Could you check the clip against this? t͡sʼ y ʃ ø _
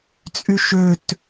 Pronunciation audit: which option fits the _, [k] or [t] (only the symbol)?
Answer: t